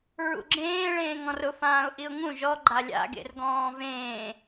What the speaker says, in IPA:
ɹ ṵ ɡ͡ǁ ẽː ɭ ẽː ŋ ɔ̃ r ʊ f ãː ʊ̯ ʔ i ʊ̯ ŋ ũ ʒ ɔ ɡ͡ǃ a lʲ a̰ ɡ ḛ r ɡ ɔ̃ː v ẽː

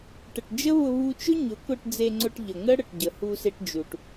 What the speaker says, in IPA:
ʈ ə˨ ʈ d͡ʒ ə˦ β ʊ˧ β u˧ t͡ʃ ʊ˦ ɲ ʊ˨˦ k ʊ˧ ʈ d͡z e˧ ŋ͡ǀ ʊ˧ ʈ ʎ ə˨ ŋ ə˦ ɽ ə˨ ʈ ɟ ə˨ h u˧ s e˧ ʈ d͡ʒ u˨ ʈ

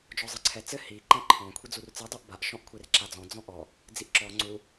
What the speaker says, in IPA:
d͡ʒ ɔ zˤ ɨ ǀʰ ɛ t͡s ɘ h i ǃ ɛ̃ ǃʰ ɔ̃ kʷʰ i d͡z u r t͡s ɨ dˤ u ʔ b a ʔ ʃ ɔ̃ ʔ kʷʰ e r ǁ a d͡z ɔ̃ d͡z ɔ̃ ʔ ɔ | d͡z i ʔ ǁ ɔ ŋ͡ǀ u

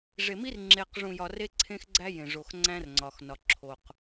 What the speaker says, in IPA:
ʐ e˨ m i˦ r ŋ͡ǁ e˨ q ʐ ũ˨ j ɒ˨ r e˦ ǀʰ ẽ˦ x ɡ͡ǀ æ˦ j ẽ˨ ʐ o˨ x ŋ͡ǀ æ̃˦ r ŋ͡ǀ ɒ˨ x n ɒ˨ ǁʰ o˨ q

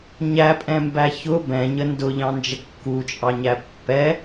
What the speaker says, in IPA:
ɲ æ pʼ ɛ̃ m b æ ç ʊ b ɛ̃ ɲ ə n d ʊ ʎ ɑ̃ n d͡ʒ ə kː u t͡ʃʼ ɑ ɲ æ pː ɛ

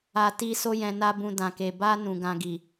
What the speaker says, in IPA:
a˨ t i˧ s o˧ j ɛ̃˨ n a˧ b ũ˨ d ã˨ k e˨ b a˧ n ũ˨ ɡ ã˧ ɡ i˨

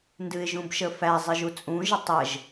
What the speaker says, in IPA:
n d ɨ ɪ̯ ʒ ũ b ʃ ə f æ zˤ ɨ ʒ u t͡sʼ ũ ʒ ə tˤ ə ʒ

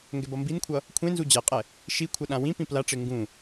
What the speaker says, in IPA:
ŋ ɡ ɛ b ʌ m b i n kʷʰ ʌ | kʷʰ ẽ n z u d͡ʑ ɛ qʼ ɛ | ʃ i kʷʰ ʌ ɗ ã w ĩ p ĩ p l a ʈ͡ʂ e ŋ ɡ ũ

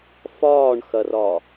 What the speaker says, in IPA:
f ɒː ɳ x ɐ r ɒ

